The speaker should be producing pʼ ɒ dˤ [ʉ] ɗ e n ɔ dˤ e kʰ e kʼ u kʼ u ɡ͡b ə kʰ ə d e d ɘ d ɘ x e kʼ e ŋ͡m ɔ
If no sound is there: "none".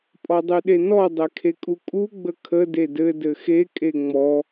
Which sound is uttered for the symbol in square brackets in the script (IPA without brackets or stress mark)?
ʉ